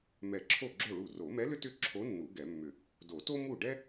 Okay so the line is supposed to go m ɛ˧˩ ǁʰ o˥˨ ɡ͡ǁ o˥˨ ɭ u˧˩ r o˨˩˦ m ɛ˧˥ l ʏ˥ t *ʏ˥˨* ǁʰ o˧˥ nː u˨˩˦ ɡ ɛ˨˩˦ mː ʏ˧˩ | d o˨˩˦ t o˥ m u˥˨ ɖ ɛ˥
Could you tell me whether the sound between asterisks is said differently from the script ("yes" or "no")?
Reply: no